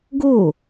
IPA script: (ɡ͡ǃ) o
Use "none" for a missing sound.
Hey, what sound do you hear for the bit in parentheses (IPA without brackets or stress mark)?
ɡ